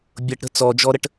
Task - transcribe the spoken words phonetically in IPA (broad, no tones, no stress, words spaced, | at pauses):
bʲɤʈɾə̤ t͡sɔd͡ʒɔɾəʈ